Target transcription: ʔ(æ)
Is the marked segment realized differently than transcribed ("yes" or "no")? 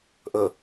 yes